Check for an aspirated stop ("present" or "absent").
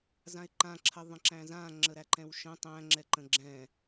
present